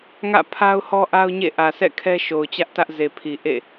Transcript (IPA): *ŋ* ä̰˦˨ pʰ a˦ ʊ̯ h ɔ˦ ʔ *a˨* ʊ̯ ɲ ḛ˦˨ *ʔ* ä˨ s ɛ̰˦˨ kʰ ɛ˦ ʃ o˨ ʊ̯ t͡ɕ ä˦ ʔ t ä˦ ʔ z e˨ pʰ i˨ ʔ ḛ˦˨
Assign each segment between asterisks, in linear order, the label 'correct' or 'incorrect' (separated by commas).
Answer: correct, incorrect, correct